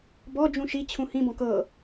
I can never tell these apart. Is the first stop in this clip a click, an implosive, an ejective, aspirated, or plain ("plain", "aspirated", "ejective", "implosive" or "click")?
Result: plain